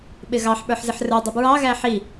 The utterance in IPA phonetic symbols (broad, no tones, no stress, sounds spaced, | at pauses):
ɓ ɪ ɣ ɑ ħ ɓ ə˞ ħ z ɪ ħ r ə˞ dˤ ʌ b ɹ ɑ ɣ æ ħ i